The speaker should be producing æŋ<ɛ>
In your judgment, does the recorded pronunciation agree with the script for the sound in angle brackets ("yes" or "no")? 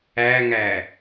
no